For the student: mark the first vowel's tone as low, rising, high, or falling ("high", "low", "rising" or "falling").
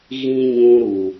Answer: high